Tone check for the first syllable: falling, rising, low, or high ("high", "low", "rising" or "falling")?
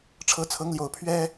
rising